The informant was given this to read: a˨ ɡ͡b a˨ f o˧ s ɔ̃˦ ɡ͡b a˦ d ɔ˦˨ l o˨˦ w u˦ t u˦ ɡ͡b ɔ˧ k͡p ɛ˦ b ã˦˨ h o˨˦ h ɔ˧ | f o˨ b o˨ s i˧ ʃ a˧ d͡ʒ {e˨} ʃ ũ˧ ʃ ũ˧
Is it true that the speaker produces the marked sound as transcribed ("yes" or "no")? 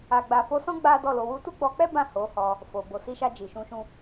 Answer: no